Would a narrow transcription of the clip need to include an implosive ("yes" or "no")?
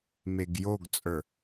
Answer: no